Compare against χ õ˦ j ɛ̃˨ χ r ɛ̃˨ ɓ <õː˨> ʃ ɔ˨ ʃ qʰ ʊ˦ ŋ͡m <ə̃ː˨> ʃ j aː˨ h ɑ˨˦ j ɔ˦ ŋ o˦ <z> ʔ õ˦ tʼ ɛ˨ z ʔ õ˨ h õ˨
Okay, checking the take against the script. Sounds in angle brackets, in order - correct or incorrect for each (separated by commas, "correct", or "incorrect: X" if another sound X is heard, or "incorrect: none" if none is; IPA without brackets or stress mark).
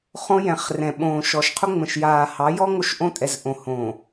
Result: correct, incorrect: ə̃˨, incorrect: ʃ